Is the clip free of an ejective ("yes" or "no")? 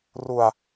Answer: yes